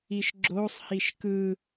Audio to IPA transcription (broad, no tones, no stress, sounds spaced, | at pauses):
i ʃ ɡ͡ǁ o sˤ h i ʃ k ɯ